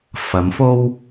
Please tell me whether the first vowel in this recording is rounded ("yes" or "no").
no